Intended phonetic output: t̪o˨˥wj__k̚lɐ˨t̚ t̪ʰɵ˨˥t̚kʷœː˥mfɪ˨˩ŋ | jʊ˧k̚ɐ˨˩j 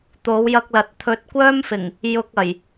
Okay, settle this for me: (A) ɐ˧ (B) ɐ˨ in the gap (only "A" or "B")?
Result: A